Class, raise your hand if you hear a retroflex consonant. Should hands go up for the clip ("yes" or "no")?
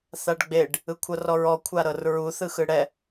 yes